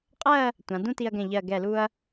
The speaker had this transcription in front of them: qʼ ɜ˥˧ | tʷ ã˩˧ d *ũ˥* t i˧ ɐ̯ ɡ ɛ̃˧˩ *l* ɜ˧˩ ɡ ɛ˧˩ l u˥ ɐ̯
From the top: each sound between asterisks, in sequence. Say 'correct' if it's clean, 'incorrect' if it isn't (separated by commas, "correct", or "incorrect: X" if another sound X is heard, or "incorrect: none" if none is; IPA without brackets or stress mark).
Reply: correct, incorrect: ʎ